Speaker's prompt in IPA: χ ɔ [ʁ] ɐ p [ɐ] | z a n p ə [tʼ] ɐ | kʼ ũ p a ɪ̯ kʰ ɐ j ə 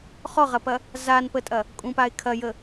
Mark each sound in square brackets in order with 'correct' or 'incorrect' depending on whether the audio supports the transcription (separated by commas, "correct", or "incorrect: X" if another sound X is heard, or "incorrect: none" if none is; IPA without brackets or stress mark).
correct, correct, correct